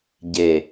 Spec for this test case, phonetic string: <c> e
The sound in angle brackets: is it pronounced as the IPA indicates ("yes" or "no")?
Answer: no